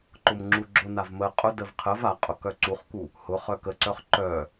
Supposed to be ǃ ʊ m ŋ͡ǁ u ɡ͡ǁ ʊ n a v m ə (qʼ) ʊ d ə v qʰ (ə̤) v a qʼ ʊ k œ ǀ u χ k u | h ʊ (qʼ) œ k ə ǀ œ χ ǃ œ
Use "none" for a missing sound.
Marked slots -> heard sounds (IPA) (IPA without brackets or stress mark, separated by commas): qʼ, ə, χ